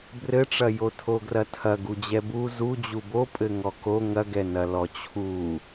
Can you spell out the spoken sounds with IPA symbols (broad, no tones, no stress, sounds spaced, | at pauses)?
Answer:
b r ɘ ʈ͡ʂ ɐ j o tʰ o ɡ r ɐ tʰ ɐ ɡ u d͡ʑ ɛ b u z u d͡ʑ u b o pʼ ɘ ŋ ɔ k o ŋ ɐ ɡ ɛ n ɐ l ɔ t͡ɕʰ u